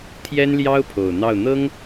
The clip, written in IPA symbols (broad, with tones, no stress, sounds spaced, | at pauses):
t̪ʰ j ɛ˥ n l j ɑ˥ ʊ̯ pʰ o˨˩ ʊ̯ n̪ ɑ˥˩ ʊ̯ n̪ ɤ˥ ŋ